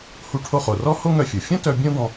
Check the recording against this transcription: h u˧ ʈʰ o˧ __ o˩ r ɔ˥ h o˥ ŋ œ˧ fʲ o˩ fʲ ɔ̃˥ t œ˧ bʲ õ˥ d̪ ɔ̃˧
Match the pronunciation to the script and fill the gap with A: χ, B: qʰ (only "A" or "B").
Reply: A